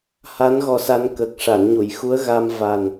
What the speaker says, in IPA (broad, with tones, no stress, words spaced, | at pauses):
ha˧˥n ɣɔ˧sa˧n kəː˨˩k̚ ʂa˨˩˨nɲu˨˩˨j xu˧˥ə̯ɣa˧m va˨˩n